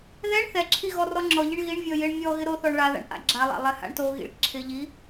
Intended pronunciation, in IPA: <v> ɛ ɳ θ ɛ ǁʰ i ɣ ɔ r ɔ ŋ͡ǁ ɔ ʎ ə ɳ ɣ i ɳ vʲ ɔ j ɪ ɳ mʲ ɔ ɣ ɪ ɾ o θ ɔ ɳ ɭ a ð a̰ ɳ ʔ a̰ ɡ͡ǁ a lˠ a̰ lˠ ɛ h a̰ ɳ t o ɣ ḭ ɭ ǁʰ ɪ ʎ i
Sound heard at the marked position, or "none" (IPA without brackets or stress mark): ð